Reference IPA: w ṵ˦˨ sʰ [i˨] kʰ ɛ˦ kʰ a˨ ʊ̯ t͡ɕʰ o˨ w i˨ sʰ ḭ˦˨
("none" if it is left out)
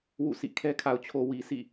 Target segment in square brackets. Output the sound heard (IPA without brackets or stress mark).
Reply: ḭ˦˨